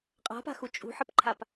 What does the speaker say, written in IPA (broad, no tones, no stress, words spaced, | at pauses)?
qʼa̤pa̤xu t͡ʃʼṳħəpǃʰap